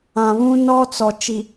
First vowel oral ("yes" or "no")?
no